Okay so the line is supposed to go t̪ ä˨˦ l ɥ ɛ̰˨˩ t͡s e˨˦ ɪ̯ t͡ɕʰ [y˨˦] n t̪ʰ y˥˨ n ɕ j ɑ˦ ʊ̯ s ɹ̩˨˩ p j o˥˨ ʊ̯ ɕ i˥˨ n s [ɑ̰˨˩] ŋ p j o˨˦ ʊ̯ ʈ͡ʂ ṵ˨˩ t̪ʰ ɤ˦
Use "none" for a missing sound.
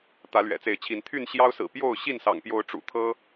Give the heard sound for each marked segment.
i˨˦, ɑ̰˨˩

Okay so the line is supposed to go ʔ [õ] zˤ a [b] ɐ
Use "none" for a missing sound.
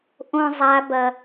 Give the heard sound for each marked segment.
õ, b

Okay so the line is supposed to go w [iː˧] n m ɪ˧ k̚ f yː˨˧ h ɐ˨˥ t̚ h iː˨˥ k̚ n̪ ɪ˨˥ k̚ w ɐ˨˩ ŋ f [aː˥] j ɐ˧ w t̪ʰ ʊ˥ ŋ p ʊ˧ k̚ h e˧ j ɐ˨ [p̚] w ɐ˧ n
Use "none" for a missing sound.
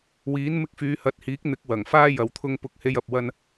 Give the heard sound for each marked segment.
iː˨˥, aː˥, p̚

